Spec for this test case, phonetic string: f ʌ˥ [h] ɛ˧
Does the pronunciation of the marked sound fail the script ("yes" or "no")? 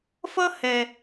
no